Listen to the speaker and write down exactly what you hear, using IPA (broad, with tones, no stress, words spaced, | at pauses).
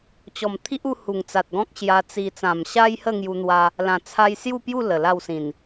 t͡ɕɔ˨˩m t̪ʰi˦ʔu˧ hu˨˩ŋt͡sa˨t̚ɡɔ̃˦k̚ ɕja˧t͡si˧ t͡sã˨˩mɕa˦jhə˥˧ ŋju˧n̪wa˧ | lã˨˩t͡sʰa˧jsju˥˧pju˥˧ lə˨˩la˥˧wsĩ˨˩n